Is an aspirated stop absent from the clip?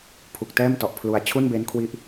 no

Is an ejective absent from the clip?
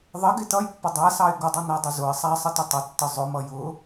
yes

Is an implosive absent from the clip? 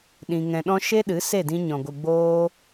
no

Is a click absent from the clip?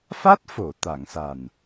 yes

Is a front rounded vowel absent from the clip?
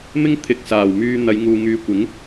no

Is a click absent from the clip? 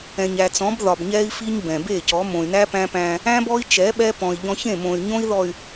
yes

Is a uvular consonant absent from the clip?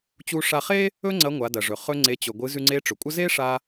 no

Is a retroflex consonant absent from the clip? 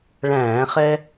no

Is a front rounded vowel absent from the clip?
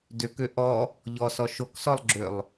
no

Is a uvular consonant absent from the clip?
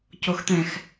yes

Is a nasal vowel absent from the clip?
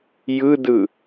yes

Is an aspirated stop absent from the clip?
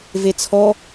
no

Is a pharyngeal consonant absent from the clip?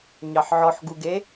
no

